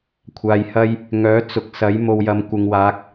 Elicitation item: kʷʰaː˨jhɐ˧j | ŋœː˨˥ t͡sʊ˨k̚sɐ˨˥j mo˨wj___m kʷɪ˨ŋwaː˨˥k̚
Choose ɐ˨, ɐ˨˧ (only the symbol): ɐ˨˧